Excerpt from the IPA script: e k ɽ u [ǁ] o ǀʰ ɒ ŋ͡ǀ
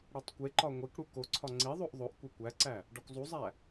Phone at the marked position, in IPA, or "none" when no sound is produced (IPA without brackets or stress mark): k